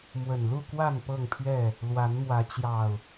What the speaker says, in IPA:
m w ə˨˩ n l u˥˨ k w a˥˨ n p ɤ˥˨ ŋ pʰ ɥ ɛ˥˨ | l w a˨˦ n m w ä˨˦ t͡ɕ j ɑ˨˩ ʊ̯

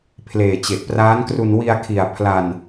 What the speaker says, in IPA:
pʰ l eː˨˩ t͡ɕ e˨˩ ʔ p r aː˦˥ n k r u˧ n w i˧ a̯ kʰ i˨˩ a̯ pʰ l a˧ n

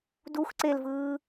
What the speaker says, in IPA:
d u x ǀ e l v ɯː

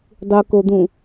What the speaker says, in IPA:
dˤ u k o d̪ ũ

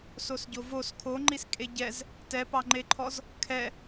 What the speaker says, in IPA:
s o s ɟ o v o s kʰ o ŋ͡ǃ i s kʼ e ɟ ɛ z | t ɛ p ɑ ŋ͡ǃ e ǃʰ ɔ z | kʰ ɛ

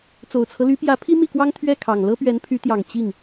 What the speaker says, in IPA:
t͡s o˨˩ ʊ̯ t͡sʰ ɤ˦ l y˧˥ p j ä˧˥ pʰ i˥ m i˥˩ k w ɑ˥ ŋ t̪ʰ ɥ ɛ˥˩ kʰ ɑ˨˩ ŋ l ɤ˥ p ɥ ɛ˧˥ n pʰ y˧˥ t̪ j ɑ˨˩ ŋ t͡ɕ i˥˩ ŋ

